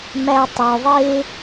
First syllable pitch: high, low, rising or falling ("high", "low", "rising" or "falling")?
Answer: low